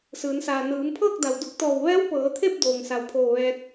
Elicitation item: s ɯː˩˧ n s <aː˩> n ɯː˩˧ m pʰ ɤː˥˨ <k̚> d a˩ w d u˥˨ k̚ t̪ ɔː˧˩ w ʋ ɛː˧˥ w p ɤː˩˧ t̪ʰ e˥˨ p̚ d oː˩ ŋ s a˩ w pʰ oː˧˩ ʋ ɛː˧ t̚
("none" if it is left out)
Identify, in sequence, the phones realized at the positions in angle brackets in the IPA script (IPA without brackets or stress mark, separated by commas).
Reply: aː˩, k̚